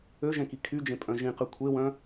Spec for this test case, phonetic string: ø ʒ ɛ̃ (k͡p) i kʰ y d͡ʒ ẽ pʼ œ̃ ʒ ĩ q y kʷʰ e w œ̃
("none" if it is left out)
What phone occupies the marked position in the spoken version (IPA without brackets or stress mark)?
k